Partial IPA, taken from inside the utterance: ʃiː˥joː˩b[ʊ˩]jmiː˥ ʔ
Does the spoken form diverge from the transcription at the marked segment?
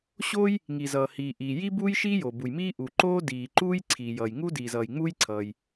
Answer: yes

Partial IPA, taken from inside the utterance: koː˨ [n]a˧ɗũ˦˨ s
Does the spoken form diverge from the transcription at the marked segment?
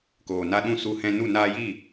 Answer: no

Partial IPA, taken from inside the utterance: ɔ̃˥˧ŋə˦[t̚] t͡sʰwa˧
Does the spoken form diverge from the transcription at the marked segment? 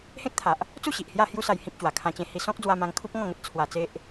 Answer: no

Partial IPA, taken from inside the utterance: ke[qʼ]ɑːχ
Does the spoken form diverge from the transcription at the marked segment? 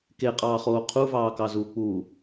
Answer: no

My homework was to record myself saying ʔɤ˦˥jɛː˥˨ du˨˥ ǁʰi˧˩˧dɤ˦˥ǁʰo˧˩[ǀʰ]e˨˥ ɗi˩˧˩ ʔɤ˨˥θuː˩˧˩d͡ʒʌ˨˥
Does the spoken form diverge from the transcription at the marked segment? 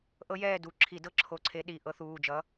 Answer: no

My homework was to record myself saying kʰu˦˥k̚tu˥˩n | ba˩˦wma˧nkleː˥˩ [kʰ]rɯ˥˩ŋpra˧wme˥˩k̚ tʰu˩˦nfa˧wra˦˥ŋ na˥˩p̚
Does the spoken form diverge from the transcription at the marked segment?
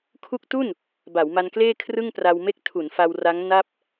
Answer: no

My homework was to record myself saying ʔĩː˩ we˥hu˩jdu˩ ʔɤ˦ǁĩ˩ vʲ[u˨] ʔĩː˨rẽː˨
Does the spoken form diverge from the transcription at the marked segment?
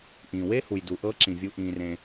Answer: no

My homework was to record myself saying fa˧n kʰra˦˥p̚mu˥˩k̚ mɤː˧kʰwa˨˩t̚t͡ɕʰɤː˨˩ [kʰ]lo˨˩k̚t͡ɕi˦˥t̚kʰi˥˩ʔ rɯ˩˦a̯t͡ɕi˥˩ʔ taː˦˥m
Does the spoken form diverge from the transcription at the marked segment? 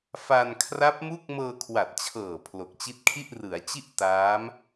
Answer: yes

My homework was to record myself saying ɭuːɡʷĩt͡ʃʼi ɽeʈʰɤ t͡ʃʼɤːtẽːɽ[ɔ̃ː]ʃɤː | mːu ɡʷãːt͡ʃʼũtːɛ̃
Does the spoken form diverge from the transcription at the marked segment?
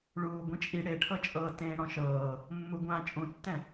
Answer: yes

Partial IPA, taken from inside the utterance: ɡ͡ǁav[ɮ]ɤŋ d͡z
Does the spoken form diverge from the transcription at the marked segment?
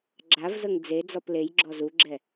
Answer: yes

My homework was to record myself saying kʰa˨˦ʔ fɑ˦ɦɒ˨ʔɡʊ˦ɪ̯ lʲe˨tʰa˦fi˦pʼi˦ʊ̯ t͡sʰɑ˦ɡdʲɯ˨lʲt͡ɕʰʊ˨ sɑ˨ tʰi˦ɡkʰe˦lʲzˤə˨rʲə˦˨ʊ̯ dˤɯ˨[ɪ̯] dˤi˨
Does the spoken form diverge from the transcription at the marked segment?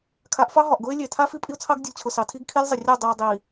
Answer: yes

